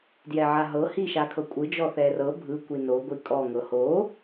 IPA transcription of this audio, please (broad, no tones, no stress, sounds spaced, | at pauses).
d j ɛ ʕ a ɦ ɤ h i ʃ a kʰ ɤ kʷʼ ɯ d͡ʒ ɔ θ ɛ r ɤ bʱ ɯ kʷ i n o ɡʷ i kʼ ɔ ŋ ɤ h o